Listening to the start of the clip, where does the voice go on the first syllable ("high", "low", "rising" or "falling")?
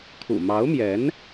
low